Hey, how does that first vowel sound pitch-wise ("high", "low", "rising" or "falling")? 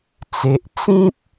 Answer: high